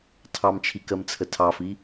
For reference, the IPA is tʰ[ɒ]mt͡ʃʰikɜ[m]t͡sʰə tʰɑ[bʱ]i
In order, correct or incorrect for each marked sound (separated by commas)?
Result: incorrect, correct, incorrect